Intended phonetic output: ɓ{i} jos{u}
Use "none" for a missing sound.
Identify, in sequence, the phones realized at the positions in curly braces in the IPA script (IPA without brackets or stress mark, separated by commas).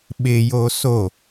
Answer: ɪ, o